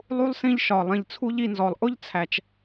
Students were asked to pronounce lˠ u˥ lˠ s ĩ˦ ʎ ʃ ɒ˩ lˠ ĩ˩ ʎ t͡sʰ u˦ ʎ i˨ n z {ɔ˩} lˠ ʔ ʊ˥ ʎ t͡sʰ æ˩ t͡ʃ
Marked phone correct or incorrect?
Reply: correct